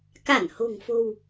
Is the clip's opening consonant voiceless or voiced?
voiceless